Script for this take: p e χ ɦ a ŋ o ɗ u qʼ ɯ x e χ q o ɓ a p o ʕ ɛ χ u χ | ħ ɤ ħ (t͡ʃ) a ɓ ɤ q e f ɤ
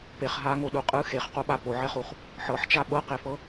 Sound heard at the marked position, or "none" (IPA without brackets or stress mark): t͡ʃ